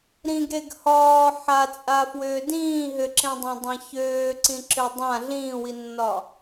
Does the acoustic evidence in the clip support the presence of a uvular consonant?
no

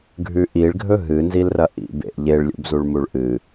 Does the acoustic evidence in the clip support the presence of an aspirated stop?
no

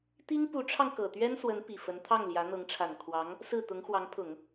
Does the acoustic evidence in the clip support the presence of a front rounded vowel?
no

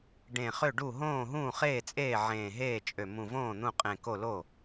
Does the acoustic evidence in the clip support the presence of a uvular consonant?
yes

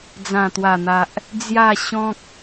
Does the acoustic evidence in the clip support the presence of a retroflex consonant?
no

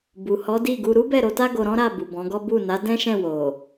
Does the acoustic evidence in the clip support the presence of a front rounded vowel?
no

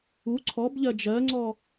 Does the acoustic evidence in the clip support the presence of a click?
yes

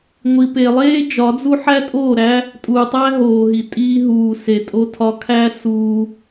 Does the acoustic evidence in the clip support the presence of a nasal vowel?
no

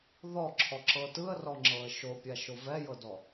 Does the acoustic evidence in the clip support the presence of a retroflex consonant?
no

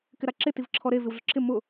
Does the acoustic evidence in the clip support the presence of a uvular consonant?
no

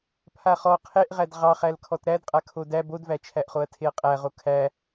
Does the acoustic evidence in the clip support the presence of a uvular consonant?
yes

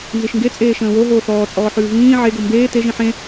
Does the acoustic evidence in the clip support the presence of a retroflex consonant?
no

